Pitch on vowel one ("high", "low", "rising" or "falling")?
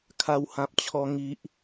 high